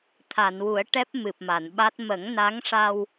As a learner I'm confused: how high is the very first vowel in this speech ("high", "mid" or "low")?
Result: low